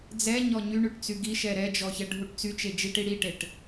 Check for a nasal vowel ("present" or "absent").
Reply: absent